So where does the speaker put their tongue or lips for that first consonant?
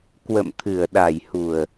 velum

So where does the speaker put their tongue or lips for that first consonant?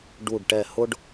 retroflex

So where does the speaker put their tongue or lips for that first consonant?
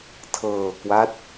tongue tip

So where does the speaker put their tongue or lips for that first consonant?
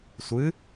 tongue tip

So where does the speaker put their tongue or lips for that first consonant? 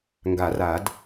velum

